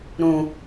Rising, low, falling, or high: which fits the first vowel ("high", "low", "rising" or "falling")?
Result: low